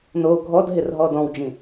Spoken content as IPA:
n o ɡʱ ɔ d ɦ ɪ r ɦ ɔ d ɔ̃ w d͡ʒ ĩ

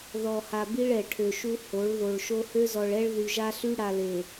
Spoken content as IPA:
ð ɔ˨ h a˨ b i˦ ɭ ɛ˨ ʈʰ ø˨ ʃ u˦ h o˨˦ ɭ ð o˨ ɭ ʃ o˦ h ø˦ z ɔ˨ ɭ ɛ˦ ɭ ð y˨ ʒ a˦ ɬ y˦ ɽ a˨ l e˨

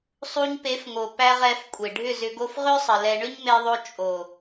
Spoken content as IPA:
sˤ u˧ ɲ p e˨˦ f ŋ o˨ p æ˦ ʁ ɛ˨˦ f kʷʼ e˨ ɖʱ ʏ˦˨ z ʏ˧ ɡ o˧ f ʁ ʏ˦ sˤ ə˨ l ɛ˧ ɳ ʏ˦ ɲ m e˧ ðˤ o˧ t͡ʃʼ o˨

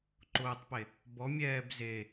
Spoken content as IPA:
ǃ ʊː tˤ p e | b ɔ mʲ ɛː b z e

